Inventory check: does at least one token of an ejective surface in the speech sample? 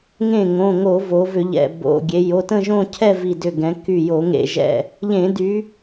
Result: no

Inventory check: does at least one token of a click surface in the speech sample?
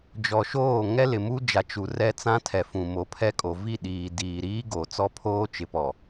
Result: no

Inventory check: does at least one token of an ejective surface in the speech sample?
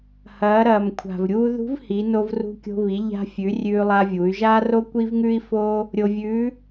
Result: no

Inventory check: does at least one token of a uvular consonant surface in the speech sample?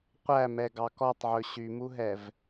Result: yes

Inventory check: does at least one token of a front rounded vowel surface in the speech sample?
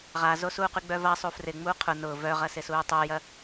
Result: yes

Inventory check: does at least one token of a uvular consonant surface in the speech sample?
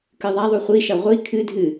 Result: yes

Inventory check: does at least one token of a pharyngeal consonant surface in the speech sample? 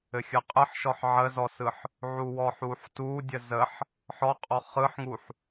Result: yes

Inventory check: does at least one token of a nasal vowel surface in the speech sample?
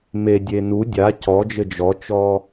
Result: no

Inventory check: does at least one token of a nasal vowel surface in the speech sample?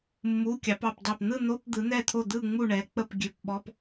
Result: no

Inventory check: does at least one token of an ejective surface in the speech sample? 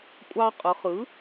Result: yes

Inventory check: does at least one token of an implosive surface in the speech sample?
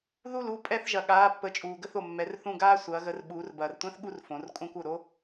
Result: yes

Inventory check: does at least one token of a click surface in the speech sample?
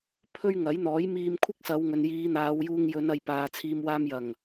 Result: no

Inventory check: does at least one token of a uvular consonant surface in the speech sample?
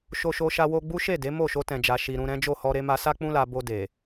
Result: no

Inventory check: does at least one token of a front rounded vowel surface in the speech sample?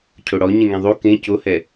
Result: no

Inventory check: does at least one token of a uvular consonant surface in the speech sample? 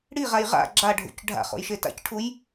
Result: yes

